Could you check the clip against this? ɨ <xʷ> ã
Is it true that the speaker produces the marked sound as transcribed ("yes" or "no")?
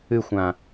yes